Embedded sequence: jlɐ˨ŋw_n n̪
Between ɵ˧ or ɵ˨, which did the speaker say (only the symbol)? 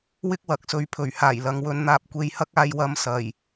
ɵ˧